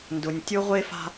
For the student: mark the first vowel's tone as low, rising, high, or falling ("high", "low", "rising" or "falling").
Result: low